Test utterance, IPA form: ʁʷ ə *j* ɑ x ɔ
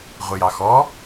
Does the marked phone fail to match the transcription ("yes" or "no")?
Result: no